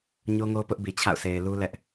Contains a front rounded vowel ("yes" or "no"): no